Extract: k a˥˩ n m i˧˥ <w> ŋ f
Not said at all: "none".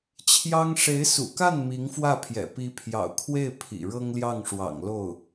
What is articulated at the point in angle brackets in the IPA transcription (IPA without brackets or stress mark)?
none